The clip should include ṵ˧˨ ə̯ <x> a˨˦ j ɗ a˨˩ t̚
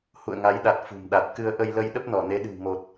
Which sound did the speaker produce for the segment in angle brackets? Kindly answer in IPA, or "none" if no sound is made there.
ŋ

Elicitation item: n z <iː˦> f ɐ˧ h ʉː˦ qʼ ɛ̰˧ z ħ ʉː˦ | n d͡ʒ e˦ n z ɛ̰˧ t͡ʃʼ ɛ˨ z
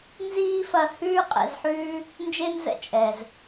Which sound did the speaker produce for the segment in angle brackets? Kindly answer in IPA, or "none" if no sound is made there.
iː˦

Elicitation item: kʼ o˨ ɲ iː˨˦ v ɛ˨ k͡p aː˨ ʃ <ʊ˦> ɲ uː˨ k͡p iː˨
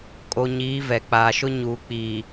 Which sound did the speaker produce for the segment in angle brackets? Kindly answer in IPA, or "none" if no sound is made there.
ʊ˦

